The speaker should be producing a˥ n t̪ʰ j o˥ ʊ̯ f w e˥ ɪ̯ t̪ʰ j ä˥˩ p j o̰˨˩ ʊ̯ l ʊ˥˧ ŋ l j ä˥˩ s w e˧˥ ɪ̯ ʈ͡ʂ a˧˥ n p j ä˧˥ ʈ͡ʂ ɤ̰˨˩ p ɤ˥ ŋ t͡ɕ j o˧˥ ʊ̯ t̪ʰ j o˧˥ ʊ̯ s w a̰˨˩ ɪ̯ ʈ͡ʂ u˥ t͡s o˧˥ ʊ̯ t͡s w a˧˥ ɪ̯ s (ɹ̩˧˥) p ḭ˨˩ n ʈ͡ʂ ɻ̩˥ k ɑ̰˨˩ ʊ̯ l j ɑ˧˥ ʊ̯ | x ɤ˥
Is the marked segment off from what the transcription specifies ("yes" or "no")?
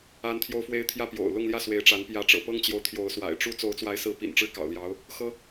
no